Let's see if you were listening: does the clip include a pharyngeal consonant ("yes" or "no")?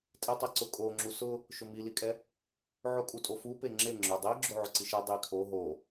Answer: yes